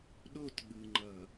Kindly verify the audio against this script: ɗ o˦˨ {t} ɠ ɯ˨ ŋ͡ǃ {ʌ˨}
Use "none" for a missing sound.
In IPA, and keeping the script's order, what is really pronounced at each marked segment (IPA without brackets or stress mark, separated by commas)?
t, ʌ˨